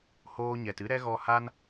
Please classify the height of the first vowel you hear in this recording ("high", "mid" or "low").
mid